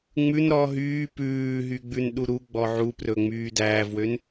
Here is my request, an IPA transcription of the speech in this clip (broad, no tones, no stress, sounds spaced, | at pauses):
ŋ͡m ʉ n ɾ ɔ ɦ yː p ʉː ɦ y ɡ͡b ʉ n ɗ u ɾ u ɡ͡b ɔ ʕ u p r ɵ ŋ͡m yː d æː v w ø n